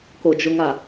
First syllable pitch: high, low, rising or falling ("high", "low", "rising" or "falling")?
low